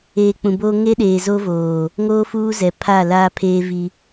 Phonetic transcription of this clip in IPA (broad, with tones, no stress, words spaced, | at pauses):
eː˨ k͡pũ˨boː˦ ŋe˦ɗeː˨zo˦ voː˨ | ŋoː˦fuː˦zɛ˨ pʰa˦˨ laː˦pʰeː˦vi˦